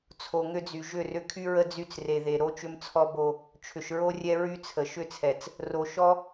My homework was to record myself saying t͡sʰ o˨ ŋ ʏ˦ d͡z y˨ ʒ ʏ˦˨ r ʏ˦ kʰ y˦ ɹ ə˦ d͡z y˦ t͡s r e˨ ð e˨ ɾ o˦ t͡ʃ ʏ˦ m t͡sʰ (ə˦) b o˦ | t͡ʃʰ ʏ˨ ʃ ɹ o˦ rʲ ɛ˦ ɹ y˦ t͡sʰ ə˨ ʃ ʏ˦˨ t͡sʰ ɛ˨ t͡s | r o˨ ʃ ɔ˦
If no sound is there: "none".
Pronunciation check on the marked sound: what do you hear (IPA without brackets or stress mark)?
ɔ˦